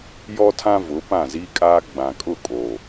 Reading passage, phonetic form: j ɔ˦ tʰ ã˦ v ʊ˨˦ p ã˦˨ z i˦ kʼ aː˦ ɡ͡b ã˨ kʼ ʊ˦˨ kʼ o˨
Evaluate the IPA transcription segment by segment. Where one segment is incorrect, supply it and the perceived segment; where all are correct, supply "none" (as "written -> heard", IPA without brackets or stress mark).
none